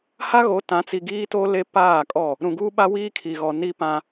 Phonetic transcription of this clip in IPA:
h a˦ ɣ o˨˦ t ã˨˦ t͡s i˨ ɡ iː˦ t o˦ l e˦ p aː˦˨ kʼ ɔ˦˨ | ɾ ũ˨ ɡ uː˦ ɓ a˦ w iː˦ kʰ i˨ ɣ ɔ˨ n i˦ p ã˦

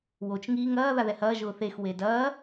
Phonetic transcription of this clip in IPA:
w o t͡ʃ ŋ iː ŋ ɐː ð a ð ɛ h ɐː ʒ ʊː θ e x w e d ɐː

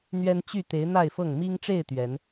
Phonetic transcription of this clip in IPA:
n̪ ɥ ɛ˦ n t͡ɕ y˥˨ t̪ e˨˦ ɪ̯ n̪ a˥˨ ɪ̯ f ɤ˥˨ ŋ m i˦ ŋ ʈ͡ʂ e˥˨ ɪ̯ t̪ ɥ ɛ˨˦ n

